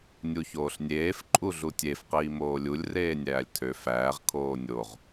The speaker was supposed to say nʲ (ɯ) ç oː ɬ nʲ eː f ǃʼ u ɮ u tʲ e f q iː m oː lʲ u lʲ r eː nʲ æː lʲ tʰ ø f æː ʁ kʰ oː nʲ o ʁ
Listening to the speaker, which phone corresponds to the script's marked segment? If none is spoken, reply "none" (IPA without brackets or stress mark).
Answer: u